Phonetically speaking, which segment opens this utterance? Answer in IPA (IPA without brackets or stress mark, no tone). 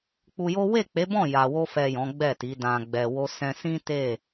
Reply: k͡p